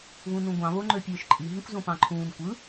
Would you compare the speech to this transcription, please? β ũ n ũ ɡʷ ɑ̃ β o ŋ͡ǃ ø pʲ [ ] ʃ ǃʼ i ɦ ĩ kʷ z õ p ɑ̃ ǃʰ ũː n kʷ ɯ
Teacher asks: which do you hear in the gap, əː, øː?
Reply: øː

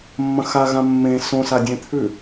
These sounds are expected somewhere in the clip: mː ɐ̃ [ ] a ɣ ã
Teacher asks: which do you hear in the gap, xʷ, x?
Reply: x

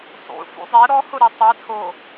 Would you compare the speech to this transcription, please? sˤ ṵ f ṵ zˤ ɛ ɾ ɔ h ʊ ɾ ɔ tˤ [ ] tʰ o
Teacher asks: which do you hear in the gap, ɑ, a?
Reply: a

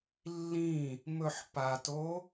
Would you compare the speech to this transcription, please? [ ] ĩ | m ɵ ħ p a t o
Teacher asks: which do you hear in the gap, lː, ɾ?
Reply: lː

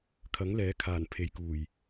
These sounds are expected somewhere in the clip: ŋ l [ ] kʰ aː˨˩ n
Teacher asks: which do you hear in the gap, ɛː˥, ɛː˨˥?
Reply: ɛː˨˥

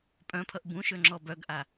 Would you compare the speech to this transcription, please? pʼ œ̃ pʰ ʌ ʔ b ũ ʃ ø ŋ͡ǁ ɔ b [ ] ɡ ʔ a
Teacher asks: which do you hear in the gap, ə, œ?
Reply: œ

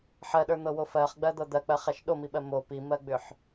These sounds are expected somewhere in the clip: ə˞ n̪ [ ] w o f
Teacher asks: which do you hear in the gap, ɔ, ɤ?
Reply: ɤ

